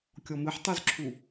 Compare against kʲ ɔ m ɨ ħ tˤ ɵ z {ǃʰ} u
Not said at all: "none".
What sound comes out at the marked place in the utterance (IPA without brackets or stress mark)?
ǁʰ